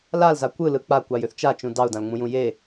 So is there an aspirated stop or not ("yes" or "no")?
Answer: no